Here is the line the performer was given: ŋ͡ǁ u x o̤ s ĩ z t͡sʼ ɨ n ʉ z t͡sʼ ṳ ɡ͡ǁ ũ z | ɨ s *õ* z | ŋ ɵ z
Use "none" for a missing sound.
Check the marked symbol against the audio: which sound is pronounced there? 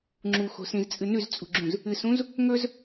ũ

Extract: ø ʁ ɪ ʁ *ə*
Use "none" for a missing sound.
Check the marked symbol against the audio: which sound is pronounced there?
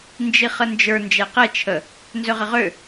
ø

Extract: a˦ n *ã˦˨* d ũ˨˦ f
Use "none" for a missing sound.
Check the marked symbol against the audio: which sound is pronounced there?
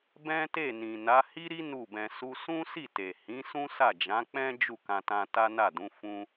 a˦˨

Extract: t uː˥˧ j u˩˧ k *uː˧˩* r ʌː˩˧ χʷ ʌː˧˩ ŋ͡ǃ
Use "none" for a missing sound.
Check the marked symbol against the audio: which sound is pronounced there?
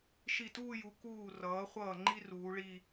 uː˧˩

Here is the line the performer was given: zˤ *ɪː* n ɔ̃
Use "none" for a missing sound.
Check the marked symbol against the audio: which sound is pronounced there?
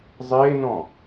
ɪː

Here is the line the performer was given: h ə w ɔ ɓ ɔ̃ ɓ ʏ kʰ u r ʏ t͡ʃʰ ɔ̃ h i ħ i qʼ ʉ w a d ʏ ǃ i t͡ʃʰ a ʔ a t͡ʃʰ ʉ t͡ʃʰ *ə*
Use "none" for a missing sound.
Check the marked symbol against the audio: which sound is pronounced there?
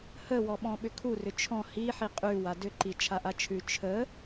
ə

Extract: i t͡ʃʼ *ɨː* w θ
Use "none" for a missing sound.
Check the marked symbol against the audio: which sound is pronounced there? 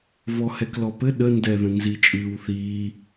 ɨː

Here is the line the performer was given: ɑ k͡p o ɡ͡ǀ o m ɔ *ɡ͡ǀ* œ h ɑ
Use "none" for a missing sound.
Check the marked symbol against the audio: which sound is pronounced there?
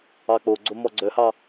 ɡ͡ǀ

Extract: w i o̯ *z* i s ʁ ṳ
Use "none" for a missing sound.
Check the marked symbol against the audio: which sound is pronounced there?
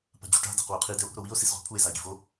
s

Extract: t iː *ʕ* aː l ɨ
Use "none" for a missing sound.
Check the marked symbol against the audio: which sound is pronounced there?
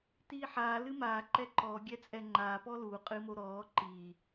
ħ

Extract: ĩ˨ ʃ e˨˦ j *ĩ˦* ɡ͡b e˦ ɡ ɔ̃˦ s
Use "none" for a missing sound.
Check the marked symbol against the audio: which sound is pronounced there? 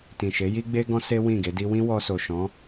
i˦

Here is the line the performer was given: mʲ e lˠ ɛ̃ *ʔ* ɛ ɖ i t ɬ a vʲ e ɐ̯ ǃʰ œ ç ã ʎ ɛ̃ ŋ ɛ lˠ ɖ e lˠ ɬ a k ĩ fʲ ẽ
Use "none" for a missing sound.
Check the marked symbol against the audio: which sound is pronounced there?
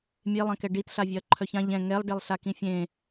k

